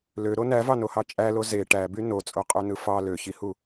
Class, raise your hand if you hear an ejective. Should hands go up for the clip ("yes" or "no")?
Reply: yes